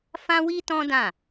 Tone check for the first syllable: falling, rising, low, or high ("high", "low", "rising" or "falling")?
high